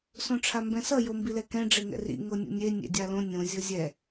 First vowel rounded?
yes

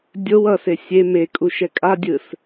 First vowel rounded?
yes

